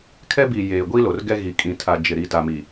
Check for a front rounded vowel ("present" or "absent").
absent